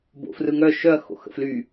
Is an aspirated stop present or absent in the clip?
absent